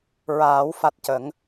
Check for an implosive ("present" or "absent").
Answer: absent